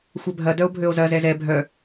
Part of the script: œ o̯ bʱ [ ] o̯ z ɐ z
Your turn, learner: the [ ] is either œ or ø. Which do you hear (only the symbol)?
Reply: ø